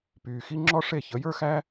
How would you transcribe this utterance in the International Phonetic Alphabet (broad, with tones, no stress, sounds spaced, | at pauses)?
p yː˨ x i˦ ŋ͡ǁ ɔ˦ ʂ e˦˨ ç ə˨˦ j ə˞˦ x æ˦